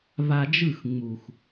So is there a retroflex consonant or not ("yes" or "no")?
no